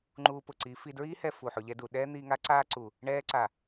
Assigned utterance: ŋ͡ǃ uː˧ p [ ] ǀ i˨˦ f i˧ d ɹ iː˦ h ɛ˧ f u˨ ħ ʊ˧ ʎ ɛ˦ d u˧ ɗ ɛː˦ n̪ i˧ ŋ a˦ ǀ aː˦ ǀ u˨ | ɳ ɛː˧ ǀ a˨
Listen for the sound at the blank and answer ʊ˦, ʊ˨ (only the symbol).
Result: ʊ˨